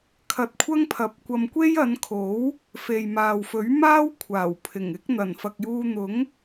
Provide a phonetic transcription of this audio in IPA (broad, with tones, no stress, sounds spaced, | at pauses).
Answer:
kʰ ɐ˧ t̚ kʷʰ ɐ˥ ŋ pʰ ɐ˨˥ p̚ kʷ ɐ˧ m kʷ e˥ j ɐ˨˧ n kʰ o˨˥ w | f e˨ j m aː˨ w f ɵ˨˥ ɥ m aː˥ w kʷʰ aː˨˩ w pʰ ɪ˨˩ ŋ ɪ˨˥ k̚ n̪ ɐ˨˩ n f ɐ˨ k̚ j uː˧ n̪ ʊ˨˥ ŋ